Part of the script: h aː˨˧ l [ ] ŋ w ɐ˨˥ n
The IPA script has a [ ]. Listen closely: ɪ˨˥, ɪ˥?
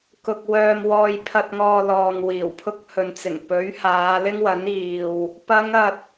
ɪ˥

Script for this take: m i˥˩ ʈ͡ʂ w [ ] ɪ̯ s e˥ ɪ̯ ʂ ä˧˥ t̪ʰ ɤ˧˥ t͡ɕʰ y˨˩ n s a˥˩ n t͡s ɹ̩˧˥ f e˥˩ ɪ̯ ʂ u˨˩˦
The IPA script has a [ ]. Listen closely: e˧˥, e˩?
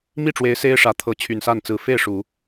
e˧˥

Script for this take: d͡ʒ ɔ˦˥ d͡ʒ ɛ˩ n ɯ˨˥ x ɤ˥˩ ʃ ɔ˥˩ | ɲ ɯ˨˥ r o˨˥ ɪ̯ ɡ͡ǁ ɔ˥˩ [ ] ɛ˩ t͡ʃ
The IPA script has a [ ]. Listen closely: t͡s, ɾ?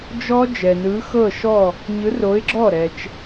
ɾ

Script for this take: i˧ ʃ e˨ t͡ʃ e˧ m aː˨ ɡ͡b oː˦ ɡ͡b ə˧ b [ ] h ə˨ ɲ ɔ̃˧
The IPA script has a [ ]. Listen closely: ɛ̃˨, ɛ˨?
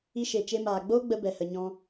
ɛ˨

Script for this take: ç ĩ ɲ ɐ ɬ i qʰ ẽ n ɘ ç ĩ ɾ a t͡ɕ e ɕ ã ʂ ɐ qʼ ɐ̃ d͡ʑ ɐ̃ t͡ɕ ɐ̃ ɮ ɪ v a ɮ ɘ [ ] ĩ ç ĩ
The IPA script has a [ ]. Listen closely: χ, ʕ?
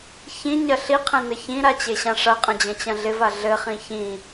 χ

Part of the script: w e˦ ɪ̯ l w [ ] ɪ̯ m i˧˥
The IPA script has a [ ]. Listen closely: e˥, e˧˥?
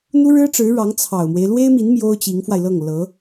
e˥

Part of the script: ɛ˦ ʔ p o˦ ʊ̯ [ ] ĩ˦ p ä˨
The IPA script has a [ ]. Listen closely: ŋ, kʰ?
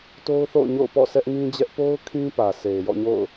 kʰ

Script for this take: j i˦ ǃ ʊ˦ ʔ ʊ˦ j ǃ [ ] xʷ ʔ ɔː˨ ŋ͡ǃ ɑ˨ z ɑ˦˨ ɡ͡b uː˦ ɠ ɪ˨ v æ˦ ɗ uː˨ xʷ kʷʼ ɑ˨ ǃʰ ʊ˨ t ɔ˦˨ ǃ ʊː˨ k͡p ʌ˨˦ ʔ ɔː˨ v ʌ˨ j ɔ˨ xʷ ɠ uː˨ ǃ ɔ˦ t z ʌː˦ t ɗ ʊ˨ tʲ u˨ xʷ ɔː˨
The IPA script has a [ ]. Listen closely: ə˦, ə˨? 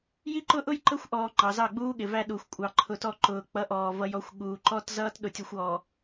ə˦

